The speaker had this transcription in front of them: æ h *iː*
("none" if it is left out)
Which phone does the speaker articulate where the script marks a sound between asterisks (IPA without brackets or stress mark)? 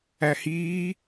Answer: iː